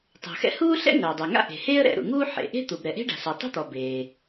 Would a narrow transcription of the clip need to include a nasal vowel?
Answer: no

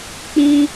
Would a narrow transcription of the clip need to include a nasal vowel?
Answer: yes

